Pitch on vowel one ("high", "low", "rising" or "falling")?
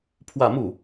falling